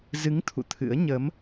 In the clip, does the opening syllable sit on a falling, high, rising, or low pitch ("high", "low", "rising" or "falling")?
rising